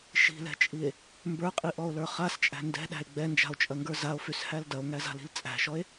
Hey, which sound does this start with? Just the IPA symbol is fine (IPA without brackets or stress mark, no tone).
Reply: ʃ